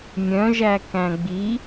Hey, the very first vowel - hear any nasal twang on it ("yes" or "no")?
yes